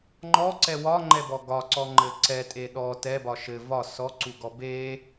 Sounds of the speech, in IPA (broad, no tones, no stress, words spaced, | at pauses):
ŋ͡ǃɔǀɛ wɒŋ͡ǃɛbɔ ɡɒǀɔŋ͡ǃɘ ǀɛtʼe ɗɔ tɛbɒ ʃɘ vɒ sɔǀuɡɔ be